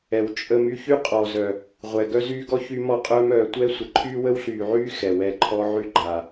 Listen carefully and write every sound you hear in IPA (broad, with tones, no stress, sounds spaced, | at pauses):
ɛ˨ w t͡ʃʼ ə˧ m y˦ ç y˦ qʼ ɔː˨ z œ˨ | ʁʷ ɛ˨ ɡ œ˦ z yː˦ ɡ ɔ˦ ç y˧ m ɔ˧ qʼ œː˧ m œː˨ tʷ ɛ˦ sʷ ə˨ ǃʰ yː˦ w ə˦ w ɬ yː˨ ʕ yː˦ x ɛ˨ w ɛ˧ ǃʰ ɔ˦ ʕ y˦ ɡ͡ǃ a˨